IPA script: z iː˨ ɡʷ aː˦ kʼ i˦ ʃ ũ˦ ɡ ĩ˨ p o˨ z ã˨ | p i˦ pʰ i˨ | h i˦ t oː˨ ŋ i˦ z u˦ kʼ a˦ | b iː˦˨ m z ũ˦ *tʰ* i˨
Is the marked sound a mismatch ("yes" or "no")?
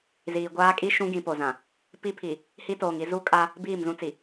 yes